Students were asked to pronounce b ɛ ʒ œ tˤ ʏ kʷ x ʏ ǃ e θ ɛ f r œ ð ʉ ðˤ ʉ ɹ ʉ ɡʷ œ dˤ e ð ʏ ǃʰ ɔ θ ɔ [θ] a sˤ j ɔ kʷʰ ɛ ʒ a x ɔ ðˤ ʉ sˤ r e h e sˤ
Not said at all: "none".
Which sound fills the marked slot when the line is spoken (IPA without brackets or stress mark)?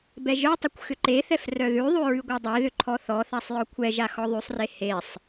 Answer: θ